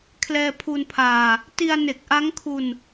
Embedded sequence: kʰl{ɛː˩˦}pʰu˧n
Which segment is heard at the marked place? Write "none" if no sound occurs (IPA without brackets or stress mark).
ɛː˧